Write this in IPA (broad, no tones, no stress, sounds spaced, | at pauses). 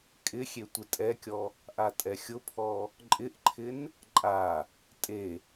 kʼ ɪ xʲ e tʷ ɪ tʼ ɛ kʲ ɔ | ʔ a tʼ ɛ xʲ ʊ pʰ ɔ | ǃʼ ɪ ʔ ǃʰ ɪ n | ǃʼ a | tʼ e